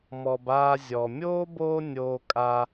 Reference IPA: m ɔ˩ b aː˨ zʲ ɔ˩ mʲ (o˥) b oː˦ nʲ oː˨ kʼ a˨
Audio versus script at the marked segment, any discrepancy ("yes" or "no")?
yes